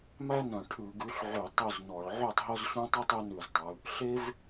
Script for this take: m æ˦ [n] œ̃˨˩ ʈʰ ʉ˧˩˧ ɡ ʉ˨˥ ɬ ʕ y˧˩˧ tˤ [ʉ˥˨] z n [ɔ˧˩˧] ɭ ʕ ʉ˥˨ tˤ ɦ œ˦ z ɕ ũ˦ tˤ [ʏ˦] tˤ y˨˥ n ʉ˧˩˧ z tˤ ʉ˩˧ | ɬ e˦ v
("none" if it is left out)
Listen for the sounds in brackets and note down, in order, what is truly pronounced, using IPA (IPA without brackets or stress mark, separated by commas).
n, ʉ˥˨, ɔ˧˩˧, u˦